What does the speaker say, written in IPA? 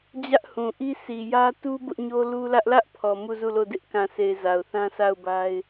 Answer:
d͡ʑä˦ʔhũ˨ʔi˦ sʰi˨jä˦ tu˦ bʊ˦ʔɲo˦ lu˦lä˦ʔ lä˦ʔpʰɔ˨ mu˦˨zu˦˨lo˦˨ dɪ˦ʔkã˨se˨ɪ̯ za˨ʊ̯θã˦sʰa˦˨ʊ̯ba˦ɪ̯

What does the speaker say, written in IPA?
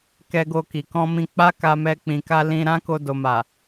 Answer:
kɛ˧ɡo˧ki˨ kɔ̃˧mĩ˧ k͡pa˦ka˧mɛ˧ k͡pĩ˨ka˧ lĩ˧ ɾã˦ko˧do˨ ma˨

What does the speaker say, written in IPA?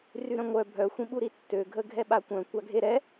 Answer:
ryɾœ̃ŋʷœ bʱœ xʷĩɓuɾitːø ɡʱəɡʱɛɓakʷœ̃ kʷaɡʱeɾɛ

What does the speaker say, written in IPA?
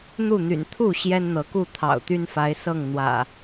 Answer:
n̪u˥˨n̪y̰˨˩n t̪ʰu˥˨ ɕjɛ˦nn̪ɤ˨˦ku˥˨ t̪ʰɑ̰˨˩ʊ̯t̪y˦nfa˨˦ɪ̯ sɤ˥˨ŋn̪wä̰˨˩

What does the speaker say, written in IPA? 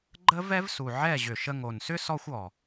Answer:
ɡ͡ǃə˦vɛ˦vsu˨ ʕɛ˦˨ʑʏ˨ʃə˧ŋo˨n sʏ˦ sɔ˧xʷ ɔ˨

